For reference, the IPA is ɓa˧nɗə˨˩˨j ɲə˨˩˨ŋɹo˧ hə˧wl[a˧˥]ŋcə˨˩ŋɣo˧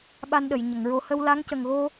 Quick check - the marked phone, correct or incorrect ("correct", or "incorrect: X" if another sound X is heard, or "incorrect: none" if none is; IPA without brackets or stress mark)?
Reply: correct